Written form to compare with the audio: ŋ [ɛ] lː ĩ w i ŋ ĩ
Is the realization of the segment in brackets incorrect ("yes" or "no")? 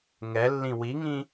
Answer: no